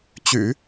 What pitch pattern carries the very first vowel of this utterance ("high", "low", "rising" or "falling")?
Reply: low